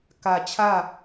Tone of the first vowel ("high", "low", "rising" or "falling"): low